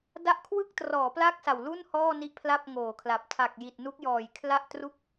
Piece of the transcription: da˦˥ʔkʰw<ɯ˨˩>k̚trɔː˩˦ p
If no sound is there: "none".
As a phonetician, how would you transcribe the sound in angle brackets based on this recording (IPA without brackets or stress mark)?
ɯ˥˩